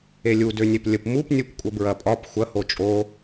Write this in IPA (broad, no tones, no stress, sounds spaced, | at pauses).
e lʲ u d ø nʲ e p lʲ ə p m u p nʲ u p kʷʼ ə b ɹ ɐ pʼ ɒ p xʷ ɐ h o t͡ʃʼ o